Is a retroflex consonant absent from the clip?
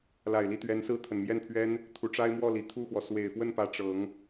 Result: no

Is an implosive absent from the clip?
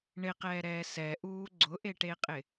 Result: yes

